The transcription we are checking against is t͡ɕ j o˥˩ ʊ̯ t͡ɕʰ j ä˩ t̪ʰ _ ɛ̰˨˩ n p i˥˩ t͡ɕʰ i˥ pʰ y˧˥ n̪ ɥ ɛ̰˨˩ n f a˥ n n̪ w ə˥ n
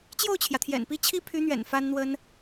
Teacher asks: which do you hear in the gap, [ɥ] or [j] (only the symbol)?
j